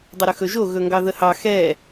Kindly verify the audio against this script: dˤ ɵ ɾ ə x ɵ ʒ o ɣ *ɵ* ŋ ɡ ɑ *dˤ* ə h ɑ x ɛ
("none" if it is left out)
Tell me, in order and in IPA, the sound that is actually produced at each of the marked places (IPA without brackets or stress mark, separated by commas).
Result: ɵ, ð